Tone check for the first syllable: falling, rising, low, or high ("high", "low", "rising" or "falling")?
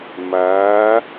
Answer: rising